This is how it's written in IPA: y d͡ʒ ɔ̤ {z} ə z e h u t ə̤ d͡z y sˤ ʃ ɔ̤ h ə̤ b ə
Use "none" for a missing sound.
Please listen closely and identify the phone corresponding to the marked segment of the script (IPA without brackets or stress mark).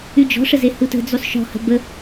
ʂ